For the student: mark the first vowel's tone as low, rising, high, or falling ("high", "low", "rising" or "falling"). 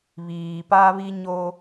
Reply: low